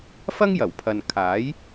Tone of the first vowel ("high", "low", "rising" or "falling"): high